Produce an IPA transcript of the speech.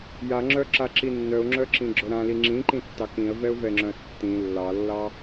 jaŋ͡ǁœǁaǁi nːœʊ̯ŋ͡ǁœǁĩɡ͡ǁœ ɾãli ŋ͡ǁĩǃĩtːɑ kĩə̯vɛʊ̯vɛŋ͡ǁœ̃ə̯ tːĩ lːɑlːɑ

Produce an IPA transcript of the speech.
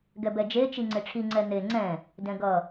ɡɛbɛd͡ʒe t͡ʃiŋ͡ǀeʈ͡ʂʰi ŋ͡ǀɛn̪e ŋ͡ǀɛ̃ | dɛ̃ɡʌ

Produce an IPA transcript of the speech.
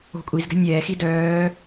o̤kʷʼizɡɛ̤ nʲɛːxi dœː

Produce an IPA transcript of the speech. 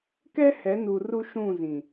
kɛ˦hɛ˨˦nu˨ ru˦ʃũ˦˨zĩ˨

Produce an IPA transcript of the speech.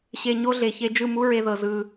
ɕe˨ ɲo˦ɮe˨çe˦ d͡ʒɯ˦˨ mu˦ ɹe˦ðɤ˨ zɯ˦

